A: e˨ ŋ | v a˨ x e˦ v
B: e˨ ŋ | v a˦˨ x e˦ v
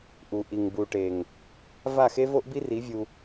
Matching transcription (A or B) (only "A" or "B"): B